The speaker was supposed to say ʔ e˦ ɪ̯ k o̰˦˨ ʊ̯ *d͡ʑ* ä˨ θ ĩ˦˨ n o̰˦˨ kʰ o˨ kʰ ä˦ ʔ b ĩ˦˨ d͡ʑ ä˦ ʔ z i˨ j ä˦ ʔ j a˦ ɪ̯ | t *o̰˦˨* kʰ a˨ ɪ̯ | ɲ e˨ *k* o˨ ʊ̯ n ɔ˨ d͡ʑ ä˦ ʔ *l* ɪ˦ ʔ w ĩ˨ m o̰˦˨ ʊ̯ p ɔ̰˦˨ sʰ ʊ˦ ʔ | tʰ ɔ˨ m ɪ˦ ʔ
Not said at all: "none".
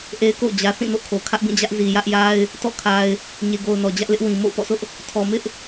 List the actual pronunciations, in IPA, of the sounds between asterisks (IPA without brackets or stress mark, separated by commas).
d͡ʑ, ɔ̰˦˨, ɡ, l